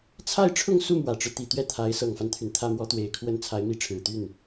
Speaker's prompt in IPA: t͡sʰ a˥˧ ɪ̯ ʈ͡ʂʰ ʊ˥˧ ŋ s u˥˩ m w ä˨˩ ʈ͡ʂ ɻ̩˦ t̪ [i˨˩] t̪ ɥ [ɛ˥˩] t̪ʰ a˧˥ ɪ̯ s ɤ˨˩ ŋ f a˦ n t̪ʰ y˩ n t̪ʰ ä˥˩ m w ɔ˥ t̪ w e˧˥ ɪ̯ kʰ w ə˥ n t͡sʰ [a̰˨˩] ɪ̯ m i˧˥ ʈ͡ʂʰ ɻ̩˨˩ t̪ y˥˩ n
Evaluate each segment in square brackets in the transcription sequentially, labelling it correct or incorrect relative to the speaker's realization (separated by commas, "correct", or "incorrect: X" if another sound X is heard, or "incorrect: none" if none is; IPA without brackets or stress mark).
correct, correct, incorrect: a˧˥